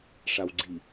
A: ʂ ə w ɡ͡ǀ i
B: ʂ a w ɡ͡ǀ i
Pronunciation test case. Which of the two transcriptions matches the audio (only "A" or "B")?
B